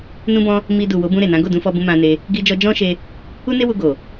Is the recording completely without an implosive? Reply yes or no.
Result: yes